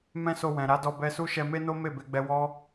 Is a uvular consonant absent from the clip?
yes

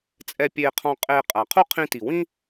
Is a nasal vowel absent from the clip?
no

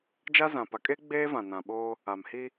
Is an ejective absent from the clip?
no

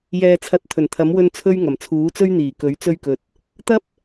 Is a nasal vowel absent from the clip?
yes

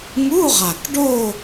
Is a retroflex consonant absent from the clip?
no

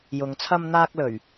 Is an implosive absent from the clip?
yes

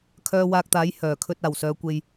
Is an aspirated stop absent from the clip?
no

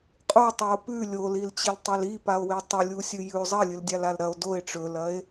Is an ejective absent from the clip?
no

